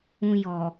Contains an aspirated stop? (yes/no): no